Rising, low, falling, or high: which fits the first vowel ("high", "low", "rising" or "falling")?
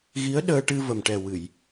rising